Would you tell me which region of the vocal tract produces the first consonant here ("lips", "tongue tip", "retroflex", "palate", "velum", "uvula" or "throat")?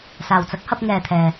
tongue tip